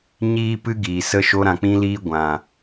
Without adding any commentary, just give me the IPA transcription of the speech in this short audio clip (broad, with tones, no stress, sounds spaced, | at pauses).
ɲ iː˦ p ɨ˦ ɡ iː˨ s ə˦ ʃ o˧ ɾ ã˨ k͡p ĩ˧ l iː˧ ɡʷ ã˨